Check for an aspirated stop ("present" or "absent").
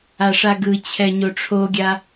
present